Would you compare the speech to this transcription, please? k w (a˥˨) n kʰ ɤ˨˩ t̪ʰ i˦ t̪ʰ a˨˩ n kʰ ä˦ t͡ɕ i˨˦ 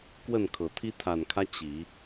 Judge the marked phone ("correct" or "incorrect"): incorrect